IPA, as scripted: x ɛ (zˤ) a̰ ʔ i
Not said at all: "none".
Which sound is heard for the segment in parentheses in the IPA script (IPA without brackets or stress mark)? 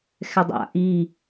dˤ